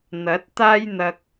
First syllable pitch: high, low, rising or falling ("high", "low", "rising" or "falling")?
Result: rising